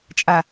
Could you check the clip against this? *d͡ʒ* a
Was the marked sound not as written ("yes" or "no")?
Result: yes